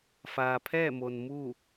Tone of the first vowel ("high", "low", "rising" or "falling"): low